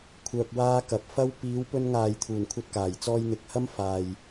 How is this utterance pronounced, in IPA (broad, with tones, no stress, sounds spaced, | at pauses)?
kʷʰ œː˧ k̚ w aː˥ k ɐ˨ p̚ f ɐ˥ w p iː˨˧ w p ɵ˧ n ŋ aː˨ j t̪ʰ uː˨˩ n kʷʰ ɐ˧ t̚ k aː˨˩ j t͡s ɔː˧ j n̪ ɪ˨ k̚ h ɐ˥ m f aː˨ j